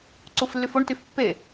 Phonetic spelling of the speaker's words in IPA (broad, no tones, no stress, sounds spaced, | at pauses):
ǀ u f lː y f o ɳ t y f pː e